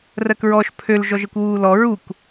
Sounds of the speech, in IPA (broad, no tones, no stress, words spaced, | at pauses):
rɜkɹɔʃ pʰøl ʒɔʒəkʷwuːlɔ ɹuk